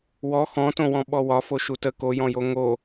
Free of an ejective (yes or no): yes